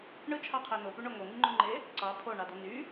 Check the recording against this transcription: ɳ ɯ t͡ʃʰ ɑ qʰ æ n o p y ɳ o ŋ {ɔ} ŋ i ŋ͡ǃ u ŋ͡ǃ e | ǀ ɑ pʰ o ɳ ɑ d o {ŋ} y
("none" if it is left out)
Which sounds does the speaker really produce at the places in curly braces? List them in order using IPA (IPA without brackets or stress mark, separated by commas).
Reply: o, n